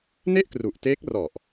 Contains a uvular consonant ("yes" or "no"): no